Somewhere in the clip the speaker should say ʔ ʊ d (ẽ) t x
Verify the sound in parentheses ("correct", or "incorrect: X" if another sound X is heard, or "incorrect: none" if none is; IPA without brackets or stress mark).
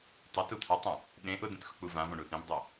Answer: correct